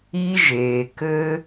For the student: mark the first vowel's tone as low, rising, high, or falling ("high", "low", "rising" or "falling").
high